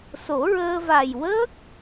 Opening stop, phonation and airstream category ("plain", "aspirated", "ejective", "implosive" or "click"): plain